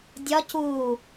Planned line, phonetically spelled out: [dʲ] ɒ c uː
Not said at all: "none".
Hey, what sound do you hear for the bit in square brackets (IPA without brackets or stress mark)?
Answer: dʲ